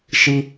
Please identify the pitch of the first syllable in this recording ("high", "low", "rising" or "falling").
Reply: high